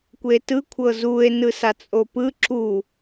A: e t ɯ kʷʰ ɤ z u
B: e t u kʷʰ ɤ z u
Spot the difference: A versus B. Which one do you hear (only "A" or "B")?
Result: A